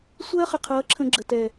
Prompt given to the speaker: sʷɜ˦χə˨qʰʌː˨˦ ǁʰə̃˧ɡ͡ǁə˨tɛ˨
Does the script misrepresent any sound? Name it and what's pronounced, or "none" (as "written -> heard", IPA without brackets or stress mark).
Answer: none